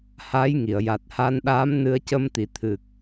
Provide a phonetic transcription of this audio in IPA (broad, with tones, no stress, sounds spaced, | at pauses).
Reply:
h a˧˥ j ŋ i˨˩˨ ə̯ j a˨˩ t̚ h a˧ n ɗ aː˧˥ m n ɨ˧ ə̯ c ə˧ m t̪ i˨˩˨ t̪ʰ ɨ˨˩ k̚